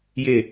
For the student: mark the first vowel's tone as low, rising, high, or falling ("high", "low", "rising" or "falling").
low